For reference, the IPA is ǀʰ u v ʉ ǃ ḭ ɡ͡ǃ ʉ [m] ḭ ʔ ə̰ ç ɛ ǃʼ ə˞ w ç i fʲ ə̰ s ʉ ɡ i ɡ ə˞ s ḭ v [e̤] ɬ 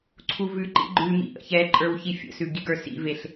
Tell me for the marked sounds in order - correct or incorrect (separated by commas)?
correct, incorrect